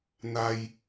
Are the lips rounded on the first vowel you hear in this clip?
no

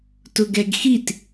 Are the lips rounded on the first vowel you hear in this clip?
yes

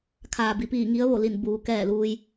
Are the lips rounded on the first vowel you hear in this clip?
no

